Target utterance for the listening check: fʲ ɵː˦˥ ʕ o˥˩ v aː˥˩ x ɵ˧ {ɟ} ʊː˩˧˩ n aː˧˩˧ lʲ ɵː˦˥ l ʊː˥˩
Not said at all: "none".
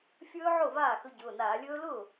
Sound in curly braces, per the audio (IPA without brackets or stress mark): ɟ